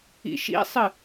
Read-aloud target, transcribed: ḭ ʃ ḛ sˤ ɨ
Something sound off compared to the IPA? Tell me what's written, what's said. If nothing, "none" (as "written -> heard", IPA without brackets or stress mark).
ḛ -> ḭ